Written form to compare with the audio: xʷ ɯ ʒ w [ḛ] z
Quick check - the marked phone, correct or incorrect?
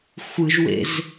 correct